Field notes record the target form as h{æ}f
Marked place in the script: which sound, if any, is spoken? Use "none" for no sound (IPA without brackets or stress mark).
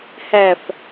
æ